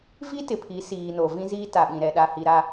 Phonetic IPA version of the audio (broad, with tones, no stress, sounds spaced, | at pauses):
v i˦ t ɪ˨ pʰ i˨˦ s iː˨ n o˨ v ĩ˦ z iː˦ t a˨ ɓ ĩ˨ ɾ ɛ˨ ɗ a˨ h i˨ ɾ a˨